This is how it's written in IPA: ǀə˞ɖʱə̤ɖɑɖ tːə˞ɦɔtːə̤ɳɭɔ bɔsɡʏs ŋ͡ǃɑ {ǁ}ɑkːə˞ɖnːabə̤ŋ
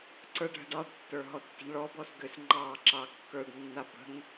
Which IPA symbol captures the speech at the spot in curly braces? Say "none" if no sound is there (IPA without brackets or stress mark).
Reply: ǁ